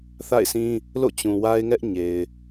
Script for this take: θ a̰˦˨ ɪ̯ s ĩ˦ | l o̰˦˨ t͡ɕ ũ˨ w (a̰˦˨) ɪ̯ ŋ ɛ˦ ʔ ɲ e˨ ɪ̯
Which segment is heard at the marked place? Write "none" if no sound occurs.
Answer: a˦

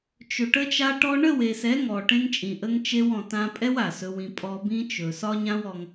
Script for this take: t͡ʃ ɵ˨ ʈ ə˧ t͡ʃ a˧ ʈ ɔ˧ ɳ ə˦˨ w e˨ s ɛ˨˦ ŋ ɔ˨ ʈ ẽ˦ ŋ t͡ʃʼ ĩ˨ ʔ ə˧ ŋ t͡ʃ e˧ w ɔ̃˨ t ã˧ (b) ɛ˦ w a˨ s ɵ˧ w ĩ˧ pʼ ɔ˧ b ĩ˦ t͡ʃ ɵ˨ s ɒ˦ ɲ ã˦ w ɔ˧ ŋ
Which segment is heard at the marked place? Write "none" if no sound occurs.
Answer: pʼ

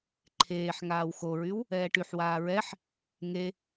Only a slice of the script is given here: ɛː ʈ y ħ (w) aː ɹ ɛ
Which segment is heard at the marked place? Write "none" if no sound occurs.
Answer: w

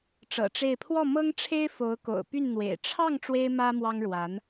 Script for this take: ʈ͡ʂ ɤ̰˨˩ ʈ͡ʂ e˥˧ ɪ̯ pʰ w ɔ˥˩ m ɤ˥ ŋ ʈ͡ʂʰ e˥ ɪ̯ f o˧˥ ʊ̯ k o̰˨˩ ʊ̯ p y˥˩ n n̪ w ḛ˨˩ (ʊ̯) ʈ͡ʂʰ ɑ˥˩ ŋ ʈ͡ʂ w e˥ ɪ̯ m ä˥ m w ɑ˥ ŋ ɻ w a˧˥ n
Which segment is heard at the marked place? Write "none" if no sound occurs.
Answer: ɪ̯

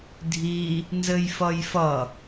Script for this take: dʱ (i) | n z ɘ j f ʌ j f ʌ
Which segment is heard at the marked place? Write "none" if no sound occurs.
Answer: i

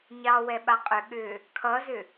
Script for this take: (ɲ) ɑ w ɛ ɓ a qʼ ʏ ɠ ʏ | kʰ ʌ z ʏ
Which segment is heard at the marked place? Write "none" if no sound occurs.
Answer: ɲ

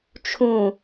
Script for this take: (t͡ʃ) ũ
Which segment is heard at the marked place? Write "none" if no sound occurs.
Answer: t͡ʃʰ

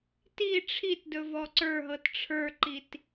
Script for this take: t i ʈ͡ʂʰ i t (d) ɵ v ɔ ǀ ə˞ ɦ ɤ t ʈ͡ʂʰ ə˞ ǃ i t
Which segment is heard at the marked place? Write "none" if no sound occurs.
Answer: d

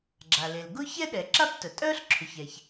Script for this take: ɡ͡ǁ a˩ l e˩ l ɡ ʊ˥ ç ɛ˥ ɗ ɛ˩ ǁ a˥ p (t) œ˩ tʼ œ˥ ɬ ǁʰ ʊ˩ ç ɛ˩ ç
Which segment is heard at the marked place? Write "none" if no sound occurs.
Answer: t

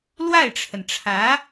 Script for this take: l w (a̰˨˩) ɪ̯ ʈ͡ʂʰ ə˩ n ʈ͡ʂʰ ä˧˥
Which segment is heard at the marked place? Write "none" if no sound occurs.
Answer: a˥˩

